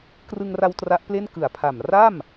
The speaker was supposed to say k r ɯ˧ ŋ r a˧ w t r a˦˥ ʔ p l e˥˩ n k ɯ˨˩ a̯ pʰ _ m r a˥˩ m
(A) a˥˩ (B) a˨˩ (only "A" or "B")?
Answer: B